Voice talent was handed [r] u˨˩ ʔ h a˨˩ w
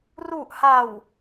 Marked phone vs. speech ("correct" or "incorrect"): correct